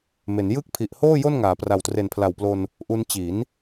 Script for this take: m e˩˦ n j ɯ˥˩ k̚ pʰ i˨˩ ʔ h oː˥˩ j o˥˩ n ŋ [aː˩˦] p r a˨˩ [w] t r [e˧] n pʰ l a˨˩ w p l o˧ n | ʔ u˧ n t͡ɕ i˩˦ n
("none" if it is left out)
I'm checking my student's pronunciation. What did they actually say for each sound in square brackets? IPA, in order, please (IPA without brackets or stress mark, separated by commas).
aː˩˦, w, e˨˩